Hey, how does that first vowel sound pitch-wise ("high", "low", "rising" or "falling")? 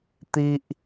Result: high